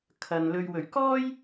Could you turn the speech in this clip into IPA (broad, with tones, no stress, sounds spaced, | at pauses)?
kʰ ɐ˨ n l ɵ˨ ɥ w ɵ˨˩ ɥ k ɔː˥ j